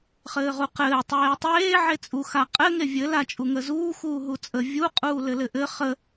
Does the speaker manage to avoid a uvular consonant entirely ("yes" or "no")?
no